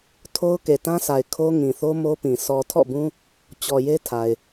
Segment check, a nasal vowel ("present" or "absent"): present